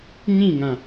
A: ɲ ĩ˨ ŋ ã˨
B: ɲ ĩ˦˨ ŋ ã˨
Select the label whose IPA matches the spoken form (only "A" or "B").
B